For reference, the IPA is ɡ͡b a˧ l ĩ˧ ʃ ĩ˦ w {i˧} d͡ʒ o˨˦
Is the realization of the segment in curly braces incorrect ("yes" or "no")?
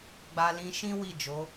yes